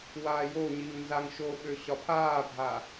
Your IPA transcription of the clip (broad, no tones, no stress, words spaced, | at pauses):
waːjoɲiŋ nzaŋʃoɓø ɕɒpʰaːbʱa